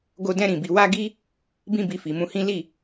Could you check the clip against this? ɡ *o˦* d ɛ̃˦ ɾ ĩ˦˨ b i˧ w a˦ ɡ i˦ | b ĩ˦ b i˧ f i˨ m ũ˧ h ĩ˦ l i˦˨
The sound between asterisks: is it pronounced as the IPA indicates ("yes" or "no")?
yes